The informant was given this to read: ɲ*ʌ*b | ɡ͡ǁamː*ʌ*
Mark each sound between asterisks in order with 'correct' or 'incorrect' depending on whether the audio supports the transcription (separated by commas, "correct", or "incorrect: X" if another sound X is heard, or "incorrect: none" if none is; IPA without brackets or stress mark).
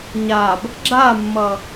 incorrect: a, correct